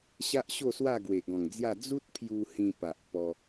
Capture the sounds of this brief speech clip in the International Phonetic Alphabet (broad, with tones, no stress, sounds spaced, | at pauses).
ɕ a˦ ʔ ɕ o˥˧ s w a˥˧ ɡ w e˨˩ ɡ ɔ̃˨˩ ŋ d͡z j a˥˧ d͡z u˦ t̚ pʰ j u˧ h ĩ˧ p a˨ ʔ p ɔ˧